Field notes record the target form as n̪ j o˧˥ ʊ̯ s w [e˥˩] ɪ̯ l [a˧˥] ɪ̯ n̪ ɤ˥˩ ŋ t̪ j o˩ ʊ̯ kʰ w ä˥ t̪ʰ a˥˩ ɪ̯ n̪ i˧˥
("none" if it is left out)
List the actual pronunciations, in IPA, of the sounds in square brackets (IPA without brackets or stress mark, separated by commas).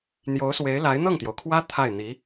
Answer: e˧˥, a˧˥